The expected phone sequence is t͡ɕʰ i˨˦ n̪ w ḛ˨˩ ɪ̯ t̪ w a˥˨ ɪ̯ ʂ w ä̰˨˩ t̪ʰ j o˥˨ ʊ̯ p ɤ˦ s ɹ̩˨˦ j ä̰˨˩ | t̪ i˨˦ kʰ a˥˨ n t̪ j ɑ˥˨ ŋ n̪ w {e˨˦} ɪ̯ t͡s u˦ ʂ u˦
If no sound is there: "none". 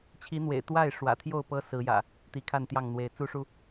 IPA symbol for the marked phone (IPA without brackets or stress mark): e˨˦